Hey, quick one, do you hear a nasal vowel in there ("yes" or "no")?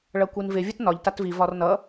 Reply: no